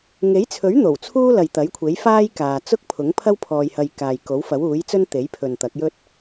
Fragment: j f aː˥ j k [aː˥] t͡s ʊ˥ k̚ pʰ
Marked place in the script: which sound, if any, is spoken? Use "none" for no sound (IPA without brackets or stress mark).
aː˨